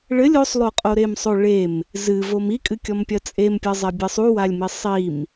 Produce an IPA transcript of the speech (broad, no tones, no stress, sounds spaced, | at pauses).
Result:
ɭ ɘ lʲ o sˤ lˠ o qʼ o ɾ e m sˤ o ɭ e m | z ɨ v o m i kʼ ɨ kʲ ɔ m pʲ ɐ t͡sʼ e m pʲ ɐ zˤ ɛ bʲ ɘ sˤ u w a lʲ m i sˤ i m